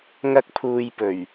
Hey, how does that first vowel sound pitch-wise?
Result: high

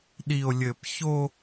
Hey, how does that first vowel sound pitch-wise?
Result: low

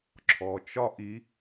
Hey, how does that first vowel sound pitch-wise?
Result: low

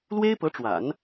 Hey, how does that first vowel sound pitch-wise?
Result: high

